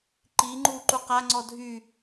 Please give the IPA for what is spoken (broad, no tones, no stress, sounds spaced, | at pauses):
ǃ i ŋ͡ǃ u ǃ u q a ŋ͡ǀ ɔ dʱ y